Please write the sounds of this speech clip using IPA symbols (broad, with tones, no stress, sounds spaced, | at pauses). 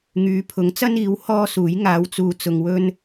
ŋ yː˨˧ pʰ ʊ˨˥ ŋ t͡s ɐ˥ n iː˨˥ w h ɔː˥ s uː˨˥ j ŋ aː˨˧ w t͡s uː˨ t͡s ʊ˧ ŋ w ɵ˥ n